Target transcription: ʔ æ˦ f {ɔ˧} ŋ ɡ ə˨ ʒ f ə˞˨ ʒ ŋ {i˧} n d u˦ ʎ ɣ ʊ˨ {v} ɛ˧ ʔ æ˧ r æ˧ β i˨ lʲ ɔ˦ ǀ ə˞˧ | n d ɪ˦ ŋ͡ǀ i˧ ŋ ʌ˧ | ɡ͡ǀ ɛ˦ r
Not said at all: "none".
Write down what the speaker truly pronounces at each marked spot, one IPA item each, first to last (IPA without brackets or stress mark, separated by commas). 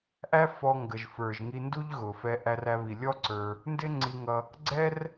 ɔ˧, i˧, f